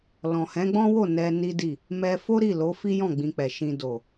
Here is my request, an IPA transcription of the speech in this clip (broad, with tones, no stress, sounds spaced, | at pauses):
l ɔ̃˨ h ɛ̃˨˦ ɡ͡b ɔ̃˦ w o˦˨ n ɛ˧ n i˦ d i˦˨ | m ɛ˧ f o˦ ɾ i˦˨ l o˨˦ f i˦ j ɔ̃˦˨ ɡ͡b ĩ˧ k͡p ɛ˨ ʃ ĩ˨ d o˨